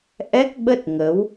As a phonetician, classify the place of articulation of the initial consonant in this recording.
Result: glottal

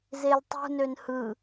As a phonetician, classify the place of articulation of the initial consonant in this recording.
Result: alveolar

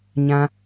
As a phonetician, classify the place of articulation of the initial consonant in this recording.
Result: palatal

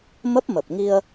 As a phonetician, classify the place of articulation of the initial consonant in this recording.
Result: labial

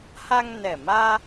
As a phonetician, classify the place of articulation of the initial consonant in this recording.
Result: glottal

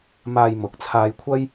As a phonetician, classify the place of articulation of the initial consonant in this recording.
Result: labial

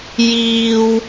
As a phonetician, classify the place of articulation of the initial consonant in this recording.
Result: palatal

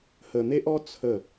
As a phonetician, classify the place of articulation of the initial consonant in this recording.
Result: glottal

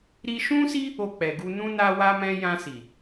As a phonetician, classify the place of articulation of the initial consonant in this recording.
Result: alveolar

